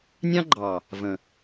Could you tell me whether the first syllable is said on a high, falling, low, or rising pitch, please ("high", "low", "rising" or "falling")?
high